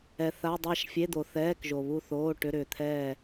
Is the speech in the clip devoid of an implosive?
yes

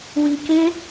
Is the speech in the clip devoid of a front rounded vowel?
yes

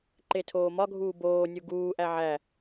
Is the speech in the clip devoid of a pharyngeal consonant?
no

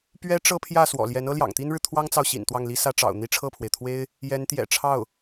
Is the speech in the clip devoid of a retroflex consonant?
no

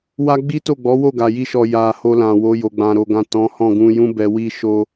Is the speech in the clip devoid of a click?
yes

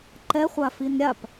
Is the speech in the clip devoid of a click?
no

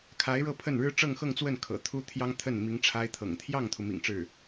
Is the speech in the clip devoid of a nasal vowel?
yes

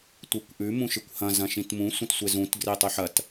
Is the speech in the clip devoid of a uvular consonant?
yes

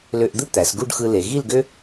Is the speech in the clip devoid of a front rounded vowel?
no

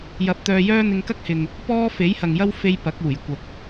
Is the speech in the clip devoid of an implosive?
yes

